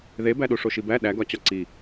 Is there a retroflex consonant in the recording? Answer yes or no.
yes